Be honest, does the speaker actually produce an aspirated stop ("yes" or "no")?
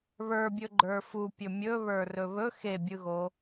no